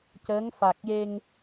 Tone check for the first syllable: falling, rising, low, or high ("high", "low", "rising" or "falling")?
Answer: rising